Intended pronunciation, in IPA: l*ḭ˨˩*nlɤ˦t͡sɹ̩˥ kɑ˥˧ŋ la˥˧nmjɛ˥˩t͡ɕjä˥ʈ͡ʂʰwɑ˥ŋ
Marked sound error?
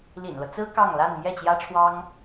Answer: no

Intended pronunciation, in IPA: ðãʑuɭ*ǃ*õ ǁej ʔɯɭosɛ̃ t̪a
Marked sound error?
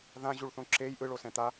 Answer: yes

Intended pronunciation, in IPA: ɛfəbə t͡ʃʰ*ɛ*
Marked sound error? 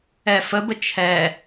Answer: no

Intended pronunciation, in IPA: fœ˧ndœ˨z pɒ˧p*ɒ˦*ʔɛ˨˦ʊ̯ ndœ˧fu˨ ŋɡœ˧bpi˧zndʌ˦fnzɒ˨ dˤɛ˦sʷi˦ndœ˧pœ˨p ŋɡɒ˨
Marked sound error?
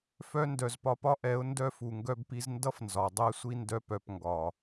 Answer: no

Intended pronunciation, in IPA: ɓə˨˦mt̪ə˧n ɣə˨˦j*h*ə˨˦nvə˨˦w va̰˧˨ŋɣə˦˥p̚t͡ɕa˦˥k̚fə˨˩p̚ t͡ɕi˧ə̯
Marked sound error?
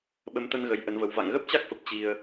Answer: yes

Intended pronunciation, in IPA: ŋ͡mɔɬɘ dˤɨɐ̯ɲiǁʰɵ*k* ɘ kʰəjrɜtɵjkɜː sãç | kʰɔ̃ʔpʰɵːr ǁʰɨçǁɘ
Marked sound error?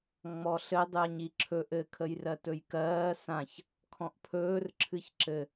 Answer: yes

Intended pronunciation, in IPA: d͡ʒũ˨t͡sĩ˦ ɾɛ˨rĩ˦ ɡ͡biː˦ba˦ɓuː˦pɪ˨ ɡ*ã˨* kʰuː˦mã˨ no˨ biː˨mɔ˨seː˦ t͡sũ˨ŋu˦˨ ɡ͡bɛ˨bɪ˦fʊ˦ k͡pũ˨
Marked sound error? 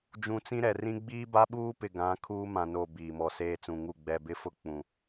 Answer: yes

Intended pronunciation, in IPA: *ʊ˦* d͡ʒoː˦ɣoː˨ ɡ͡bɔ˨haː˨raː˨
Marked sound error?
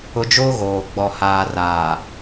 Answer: no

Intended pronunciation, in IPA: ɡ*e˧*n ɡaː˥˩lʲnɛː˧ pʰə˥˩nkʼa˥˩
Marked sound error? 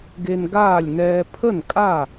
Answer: no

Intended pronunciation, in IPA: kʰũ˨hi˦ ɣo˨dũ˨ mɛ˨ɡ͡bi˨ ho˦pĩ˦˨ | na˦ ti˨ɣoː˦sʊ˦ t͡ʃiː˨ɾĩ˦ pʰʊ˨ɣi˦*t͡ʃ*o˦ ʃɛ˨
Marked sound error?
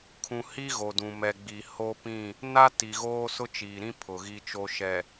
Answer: no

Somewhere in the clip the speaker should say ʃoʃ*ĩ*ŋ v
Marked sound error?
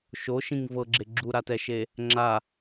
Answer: no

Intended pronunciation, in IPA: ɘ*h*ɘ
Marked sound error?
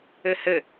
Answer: no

